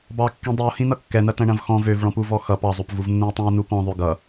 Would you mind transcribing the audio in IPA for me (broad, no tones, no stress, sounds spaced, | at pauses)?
b ɑ kː ĩ dˤ i o̯ h ĩ n ʌ kː ɛ n ɐ t ɐ̃ ɳ ɐ̃ v x ɔ̃ v ø v ɭ ɔ̃ p u v ɔ x ʌ p ɑ zˤ o p v u v nː ũ e̯ tˤ ĩ o̯ n u p ɔ̃ ðˤ ø ɡ ʌ